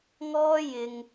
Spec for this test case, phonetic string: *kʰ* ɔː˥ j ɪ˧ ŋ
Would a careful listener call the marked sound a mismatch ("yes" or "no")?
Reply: yes